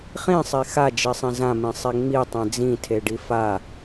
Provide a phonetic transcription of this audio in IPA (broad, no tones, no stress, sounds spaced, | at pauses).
χ ĩ sˤ e x a d͡ʒ i sˤ ĩ z ã m ĩ sˤ e ŋ͡m i tˤ ẽ d͡z ĩ tʰ e ɖ i f a